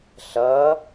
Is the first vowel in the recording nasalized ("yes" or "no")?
no